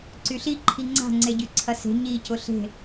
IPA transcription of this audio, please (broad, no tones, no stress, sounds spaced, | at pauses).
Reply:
ǀ y ɬ i ǃʰ i ŋ͡ǀ a̤ ŋ͡ǀ e ɟ y ǀʰ ɐ s e̤ ɲ i c ʊ ɬ e̤